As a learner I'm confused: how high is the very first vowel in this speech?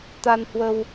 low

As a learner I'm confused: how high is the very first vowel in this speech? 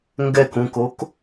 mid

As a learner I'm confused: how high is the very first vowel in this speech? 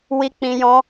high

